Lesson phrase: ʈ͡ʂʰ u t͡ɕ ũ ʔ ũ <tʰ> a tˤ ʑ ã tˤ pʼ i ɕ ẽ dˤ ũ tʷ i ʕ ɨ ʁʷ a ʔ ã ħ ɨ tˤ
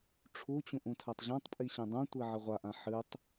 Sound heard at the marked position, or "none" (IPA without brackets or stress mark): tʰ